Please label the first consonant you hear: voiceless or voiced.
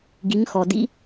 voiced